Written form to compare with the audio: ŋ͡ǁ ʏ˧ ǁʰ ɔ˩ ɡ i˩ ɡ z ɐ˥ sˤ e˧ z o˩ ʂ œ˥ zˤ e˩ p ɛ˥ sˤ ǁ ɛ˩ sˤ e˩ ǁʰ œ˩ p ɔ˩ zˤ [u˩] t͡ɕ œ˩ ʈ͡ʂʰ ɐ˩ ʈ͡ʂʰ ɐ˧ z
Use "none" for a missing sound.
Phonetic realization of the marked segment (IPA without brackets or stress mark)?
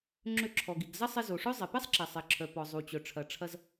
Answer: u˩